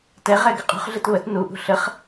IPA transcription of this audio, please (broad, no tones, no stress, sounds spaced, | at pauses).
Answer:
t ɛ ʁ ɛ ɡ ə qʼ ṳ χ ɮ ɨ t β ə t n u ʔ ṳ ɬ ə χ